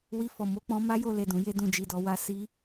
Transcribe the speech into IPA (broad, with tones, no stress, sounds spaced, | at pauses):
w i˧ f ɔ˨ m o˨˦ k͡p ɔ̃˧ m a˦ j o˧ l e˨ d ũ˨ j e˧ d ũ˨ d͡ʒ i˨ d ɔ˨ w a˧ s i˧